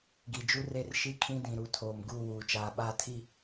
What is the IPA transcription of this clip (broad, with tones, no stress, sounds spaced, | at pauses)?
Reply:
ɡ i˨ d͡ʒ u˦ r e˦ r ʃ i˦ kʰ ĩ˦ d ĩ˨ ɾ u˨ tʰ oː˨ m ɡ uː˦˨ w uː˨ t͡ʃ aː˨ ɓ aː˦ tʰ i˦˨